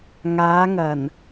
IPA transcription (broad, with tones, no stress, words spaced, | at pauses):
ŋaː˨˧ŋɐ˨˩n